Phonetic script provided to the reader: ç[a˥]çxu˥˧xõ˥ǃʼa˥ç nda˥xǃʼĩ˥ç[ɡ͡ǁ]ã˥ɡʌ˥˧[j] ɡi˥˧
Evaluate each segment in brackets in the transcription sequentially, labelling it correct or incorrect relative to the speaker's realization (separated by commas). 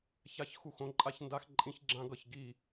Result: correct, correct, incorrect